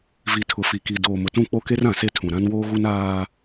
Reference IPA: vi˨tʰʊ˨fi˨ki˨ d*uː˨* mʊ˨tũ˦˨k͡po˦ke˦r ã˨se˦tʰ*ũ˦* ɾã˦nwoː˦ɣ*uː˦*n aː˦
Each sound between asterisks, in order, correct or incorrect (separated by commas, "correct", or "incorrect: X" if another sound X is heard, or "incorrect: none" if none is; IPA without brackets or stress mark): incorrect: oː˨, incorrect: ũ˨, incorrect: u˦